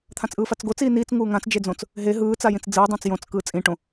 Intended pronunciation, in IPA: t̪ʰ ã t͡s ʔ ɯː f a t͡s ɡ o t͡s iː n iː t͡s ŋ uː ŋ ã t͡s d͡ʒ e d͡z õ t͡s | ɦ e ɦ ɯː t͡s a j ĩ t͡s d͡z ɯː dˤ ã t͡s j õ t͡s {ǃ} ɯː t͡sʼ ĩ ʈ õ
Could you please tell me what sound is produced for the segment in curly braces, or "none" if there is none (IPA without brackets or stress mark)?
k